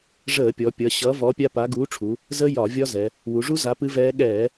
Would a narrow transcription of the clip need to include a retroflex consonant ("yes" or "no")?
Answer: yes